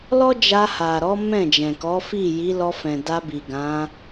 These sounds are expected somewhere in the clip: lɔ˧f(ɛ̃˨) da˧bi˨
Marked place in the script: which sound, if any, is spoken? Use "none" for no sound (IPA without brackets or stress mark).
ɛ̃˨